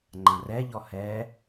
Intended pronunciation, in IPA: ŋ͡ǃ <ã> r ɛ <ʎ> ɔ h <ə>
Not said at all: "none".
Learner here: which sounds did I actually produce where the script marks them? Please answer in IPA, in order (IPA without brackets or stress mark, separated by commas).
ã, ʎ, ɛ